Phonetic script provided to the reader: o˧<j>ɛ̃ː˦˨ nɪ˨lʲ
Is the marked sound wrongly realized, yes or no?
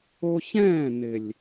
yes